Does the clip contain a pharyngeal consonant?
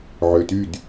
yes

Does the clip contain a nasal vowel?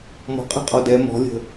no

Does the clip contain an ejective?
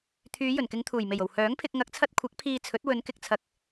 no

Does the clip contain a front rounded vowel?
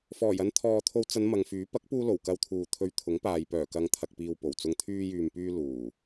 yes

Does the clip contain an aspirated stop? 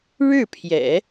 yes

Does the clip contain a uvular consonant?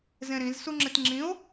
no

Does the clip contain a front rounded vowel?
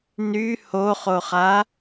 yes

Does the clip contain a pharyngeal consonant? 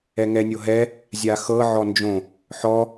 yes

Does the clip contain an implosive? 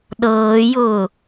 yes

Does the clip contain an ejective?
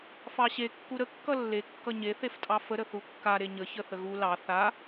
yes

